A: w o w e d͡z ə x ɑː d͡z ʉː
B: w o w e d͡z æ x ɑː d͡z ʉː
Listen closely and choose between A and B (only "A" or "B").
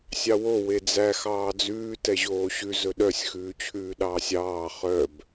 B